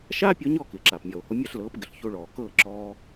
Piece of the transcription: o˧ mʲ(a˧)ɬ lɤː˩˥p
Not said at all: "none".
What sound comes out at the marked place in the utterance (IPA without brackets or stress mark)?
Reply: a˥˩